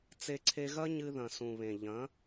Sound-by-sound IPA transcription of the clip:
t͡s e˧ ǀʰ e˧ ɣ ɐ˦ ɲ ɨ˧ ð ɐ̃˨ s ũ˨ β ẽ˨ ʎ ɐ̃˨˦

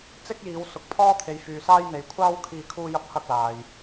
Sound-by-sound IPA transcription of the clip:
t͡s ɪ˥ k̚ j iː˨˧ w s ʊ˨˥ k̚ pʰ ɔː˥ t̪ʰ e˨˧ j f yː˨ s aː˥ j n̪ e˨ j kʷʰ aː˥ w kʰ iː˧ kʰ uː˥ j ɐ˥ p̚ h ɐ˥ k̚ l aː˨ j

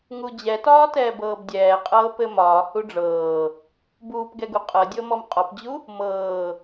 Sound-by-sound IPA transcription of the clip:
ŋ u d͡ʑ ɛ t ɒː t ɛː b ɤː b dʲ ɛː qʼ ɤː p ɘ m ɒː h u ɖ͡ʐ ɤː | b uː p ɡ ɛ ɡ u qʼ ɤ dʲ ɤ m ɔ m qʼ ɔ p d͡ʑ u | m ɤː

